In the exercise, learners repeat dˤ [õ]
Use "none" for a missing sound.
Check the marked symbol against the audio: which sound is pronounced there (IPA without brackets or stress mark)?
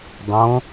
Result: õ